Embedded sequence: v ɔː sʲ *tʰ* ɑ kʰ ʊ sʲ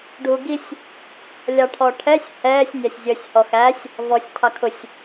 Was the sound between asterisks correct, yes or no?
yes